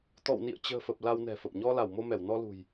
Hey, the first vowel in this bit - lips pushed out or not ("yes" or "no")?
yes